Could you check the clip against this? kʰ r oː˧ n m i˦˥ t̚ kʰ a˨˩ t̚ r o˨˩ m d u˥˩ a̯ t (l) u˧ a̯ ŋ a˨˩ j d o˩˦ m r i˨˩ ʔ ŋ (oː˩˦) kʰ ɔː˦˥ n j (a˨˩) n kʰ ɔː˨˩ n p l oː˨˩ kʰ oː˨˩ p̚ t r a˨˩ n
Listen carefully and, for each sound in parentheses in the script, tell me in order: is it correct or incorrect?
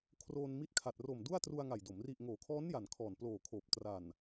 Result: incorrect: r, correct, correct

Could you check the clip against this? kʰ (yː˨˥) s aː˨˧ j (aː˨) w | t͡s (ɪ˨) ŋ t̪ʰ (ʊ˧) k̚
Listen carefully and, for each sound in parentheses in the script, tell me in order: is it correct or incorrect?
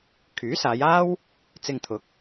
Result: correct, incorrect: aː˥, incorrect: ɪ˧, incorrect: ʊ˨˥

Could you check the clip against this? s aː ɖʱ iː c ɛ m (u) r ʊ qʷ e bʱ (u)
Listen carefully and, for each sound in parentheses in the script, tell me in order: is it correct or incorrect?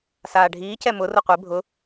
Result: incorrect: ʊ, incorrect: ʊ

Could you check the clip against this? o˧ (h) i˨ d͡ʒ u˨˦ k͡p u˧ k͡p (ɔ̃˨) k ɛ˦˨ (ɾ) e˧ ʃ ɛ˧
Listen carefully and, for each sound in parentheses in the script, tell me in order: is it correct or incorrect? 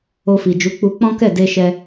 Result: incorrect: f, incorrect: ɔ̃˦, incorrect: d

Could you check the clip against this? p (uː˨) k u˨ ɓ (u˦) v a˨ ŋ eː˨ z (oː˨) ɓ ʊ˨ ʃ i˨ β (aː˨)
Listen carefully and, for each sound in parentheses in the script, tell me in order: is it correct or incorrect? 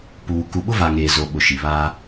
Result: correct, incorrect: ʊ˦, incorrect: o˨, incorrect: aː˦

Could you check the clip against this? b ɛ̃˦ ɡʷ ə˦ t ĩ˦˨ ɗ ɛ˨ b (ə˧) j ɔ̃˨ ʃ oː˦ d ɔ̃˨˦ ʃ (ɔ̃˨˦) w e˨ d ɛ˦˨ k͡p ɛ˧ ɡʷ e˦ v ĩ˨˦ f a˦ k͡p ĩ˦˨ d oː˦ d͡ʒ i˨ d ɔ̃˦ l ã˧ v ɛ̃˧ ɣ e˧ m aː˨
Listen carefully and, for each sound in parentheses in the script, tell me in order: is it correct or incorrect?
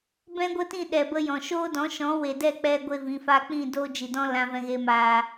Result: correct, correct

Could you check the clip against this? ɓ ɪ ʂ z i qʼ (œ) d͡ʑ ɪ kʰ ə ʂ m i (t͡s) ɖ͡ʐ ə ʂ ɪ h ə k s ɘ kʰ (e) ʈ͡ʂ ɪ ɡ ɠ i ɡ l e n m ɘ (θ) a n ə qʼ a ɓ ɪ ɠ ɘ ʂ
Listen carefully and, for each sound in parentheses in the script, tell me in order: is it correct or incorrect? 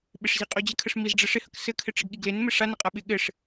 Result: correct, incorrect: z, incorrect: ɘ, incorrect: ʂ

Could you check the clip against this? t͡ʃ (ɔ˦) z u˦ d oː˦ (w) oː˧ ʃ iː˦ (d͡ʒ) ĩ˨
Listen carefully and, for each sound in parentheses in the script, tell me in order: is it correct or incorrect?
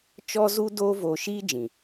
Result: correct, incorrect: v, correct

